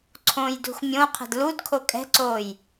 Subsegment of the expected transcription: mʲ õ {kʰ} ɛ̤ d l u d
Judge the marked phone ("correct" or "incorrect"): incorrect